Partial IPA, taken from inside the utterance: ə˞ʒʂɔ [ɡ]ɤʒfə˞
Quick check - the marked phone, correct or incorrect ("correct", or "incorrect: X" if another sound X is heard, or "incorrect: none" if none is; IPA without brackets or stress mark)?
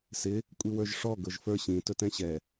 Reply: correct